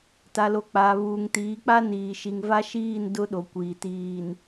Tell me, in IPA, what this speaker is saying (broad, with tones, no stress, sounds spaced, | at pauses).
t a˨ l o˨ k͡p aː˨ β uː˨ ŋ t iː˨˦ k͡p a˦ n iː˨ ʃ i˨ ŋ v a˦ ʃ iː˦˨ n d ʊ˦ ɗ o˨ kʷ iː˨ t iː˨ n